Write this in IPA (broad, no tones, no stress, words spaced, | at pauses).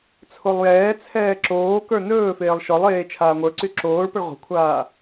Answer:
t͡sʰolˠjɛːt͡sʰɛː ǁoːkə˞ nɵːfeːlˠ ʃɔlˠeː t͡ʃʰaːŋʷə˞ǀy ǁoːɭpəɭ ʁʷə̤kʷʰaː